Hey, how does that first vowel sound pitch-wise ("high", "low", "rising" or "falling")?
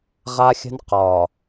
high